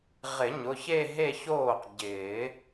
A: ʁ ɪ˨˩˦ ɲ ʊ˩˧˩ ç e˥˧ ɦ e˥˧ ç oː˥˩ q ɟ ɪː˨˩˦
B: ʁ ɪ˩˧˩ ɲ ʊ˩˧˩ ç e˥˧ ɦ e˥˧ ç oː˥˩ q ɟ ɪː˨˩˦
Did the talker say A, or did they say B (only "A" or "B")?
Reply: A